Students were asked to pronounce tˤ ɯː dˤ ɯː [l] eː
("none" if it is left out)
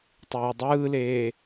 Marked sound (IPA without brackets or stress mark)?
l